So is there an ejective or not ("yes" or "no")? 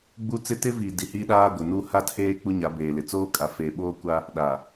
yes